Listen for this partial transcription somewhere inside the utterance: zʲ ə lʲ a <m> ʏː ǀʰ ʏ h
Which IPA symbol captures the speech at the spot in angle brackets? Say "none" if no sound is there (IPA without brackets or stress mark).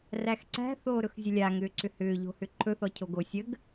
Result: ŋ